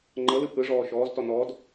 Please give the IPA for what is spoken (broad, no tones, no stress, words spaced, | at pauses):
ŋ͡ǃɤ lɯpʰɯʐɔː ʃɔːztɔ nɔd